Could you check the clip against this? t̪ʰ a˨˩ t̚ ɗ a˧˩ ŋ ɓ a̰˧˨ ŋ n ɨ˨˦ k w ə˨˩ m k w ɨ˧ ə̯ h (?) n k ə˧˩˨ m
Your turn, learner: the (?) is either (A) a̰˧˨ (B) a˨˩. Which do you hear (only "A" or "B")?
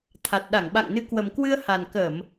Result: B